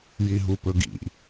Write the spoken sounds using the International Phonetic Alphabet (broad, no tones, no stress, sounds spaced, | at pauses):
j i ɦ u p ɵ ɡ ḭ